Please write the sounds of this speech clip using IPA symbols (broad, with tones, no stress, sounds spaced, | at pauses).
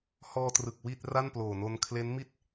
h ɔː˧ t r ɯ˨˩ k̚ w i˥˩ t̚ r a˥˩ n p l oː˨˩ n o˧ n kʰ l e˦˥ n m i˥˩ t̚